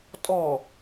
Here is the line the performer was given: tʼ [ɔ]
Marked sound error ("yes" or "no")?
no